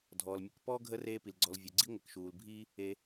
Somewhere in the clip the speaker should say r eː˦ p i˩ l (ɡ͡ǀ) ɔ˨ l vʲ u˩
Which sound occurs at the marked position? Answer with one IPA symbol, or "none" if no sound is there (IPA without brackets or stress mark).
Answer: ɡ͡ǀ